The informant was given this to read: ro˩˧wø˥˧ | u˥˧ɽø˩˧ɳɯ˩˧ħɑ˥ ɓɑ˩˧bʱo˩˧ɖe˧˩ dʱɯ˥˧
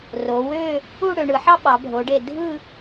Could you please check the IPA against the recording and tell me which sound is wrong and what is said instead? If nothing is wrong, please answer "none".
none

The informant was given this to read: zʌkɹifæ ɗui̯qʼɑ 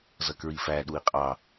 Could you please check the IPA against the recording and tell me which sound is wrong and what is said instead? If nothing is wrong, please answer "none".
none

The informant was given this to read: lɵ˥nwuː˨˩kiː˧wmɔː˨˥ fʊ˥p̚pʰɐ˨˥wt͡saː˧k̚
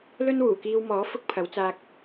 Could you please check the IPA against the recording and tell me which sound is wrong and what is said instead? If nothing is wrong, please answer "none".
p̚ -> k̚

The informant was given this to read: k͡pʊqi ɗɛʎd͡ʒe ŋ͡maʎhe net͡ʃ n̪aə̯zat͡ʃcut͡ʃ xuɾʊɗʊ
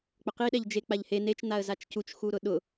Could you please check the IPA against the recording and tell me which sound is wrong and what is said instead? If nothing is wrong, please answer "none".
ŋ͡m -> k͡p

